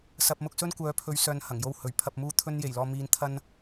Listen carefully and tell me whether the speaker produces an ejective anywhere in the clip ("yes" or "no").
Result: no